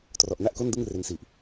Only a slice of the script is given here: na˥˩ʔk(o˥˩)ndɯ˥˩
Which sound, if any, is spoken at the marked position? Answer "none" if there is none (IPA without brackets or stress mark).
o˥˩